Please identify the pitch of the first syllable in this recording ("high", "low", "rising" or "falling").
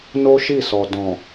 high